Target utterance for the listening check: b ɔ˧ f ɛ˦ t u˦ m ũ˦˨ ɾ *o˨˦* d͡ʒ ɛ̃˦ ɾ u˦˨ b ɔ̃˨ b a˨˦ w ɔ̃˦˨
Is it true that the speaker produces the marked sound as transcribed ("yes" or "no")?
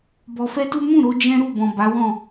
no